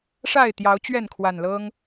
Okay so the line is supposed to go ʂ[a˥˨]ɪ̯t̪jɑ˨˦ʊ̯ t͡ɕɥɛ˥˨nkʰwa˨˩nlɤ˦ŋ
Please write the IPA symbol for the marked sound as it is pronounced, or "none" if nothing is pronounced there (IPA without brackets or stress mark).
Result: a˥˨